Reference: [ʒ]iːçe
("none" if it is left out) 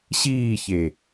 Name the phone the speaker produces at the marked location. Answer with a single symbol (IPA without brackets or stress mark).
ɕ